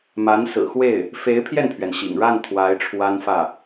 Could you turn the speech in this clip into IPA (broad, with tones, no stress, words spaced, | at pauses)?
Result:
ma˧˥nsɹ̩˨˩xwe˥˩ɪ̯ | fe˧˥ɪ̯pʰjɛ˥˩npʰɥɛ˩nɕḭ˨˩ŋ ɻa˥˩n t̪ʰwa˧˥ɪ̯ʈ͡ʂʰwa˥nfä˥˩